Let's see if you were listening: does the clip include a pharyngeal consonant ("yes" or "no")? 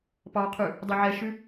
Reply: yes